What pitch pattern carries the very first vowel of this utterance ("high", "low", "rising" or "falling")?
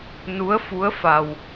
rising